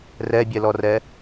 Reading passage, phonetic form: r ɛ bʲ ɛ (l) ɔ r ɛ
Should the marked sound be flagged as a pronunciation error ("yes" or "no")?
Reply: no